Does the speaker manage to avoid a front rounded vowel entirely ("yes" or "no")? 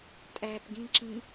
yes